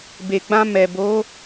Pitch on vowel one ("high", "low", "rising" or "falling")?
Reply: low